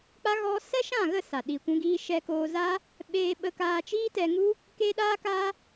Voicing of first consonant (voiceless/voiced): voiceless